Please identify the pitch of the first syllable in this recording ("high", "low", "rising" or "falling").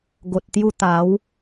low